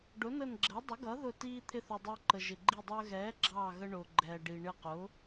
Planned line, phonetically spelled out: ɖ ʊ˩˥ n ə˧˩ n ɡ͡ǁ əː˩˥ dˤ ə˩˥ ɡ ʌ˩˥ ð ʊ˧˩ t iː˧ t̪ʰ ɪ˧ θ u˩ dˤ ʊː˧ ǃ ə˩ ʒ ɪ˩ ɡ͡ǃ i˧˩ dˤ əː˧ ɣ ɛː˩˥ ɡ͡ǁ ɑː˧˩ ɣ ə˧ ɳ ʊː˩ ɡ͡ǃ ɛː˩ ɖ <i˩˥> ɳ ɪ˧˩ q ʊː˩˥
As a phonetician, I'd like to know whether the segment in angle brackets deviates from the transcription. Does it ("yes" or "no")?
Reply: yes